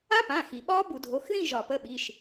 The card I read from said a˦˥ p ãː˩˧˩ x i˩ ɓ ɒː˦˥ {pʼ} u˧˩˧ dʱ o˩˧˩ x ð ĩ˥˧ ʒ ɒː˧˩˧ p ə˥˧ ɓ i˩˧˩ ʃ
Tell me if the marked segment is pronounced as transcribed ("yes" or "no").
no